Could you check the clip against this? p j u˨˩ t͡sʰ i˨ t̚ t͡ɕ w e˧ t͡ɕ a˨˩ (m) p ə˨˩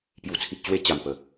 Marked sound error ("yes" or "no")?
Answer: no